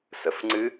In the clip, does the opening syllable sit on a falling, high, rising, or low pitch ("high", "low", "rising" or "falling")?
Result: rising